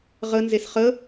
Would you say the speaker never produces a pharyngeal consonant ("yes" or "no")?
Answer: yes